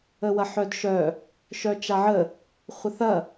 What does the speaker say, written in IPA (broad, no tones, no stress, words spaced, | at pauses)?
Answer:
əwɐħœdʃœ | ʃœt͡ʃaʕə | χʷəθɐ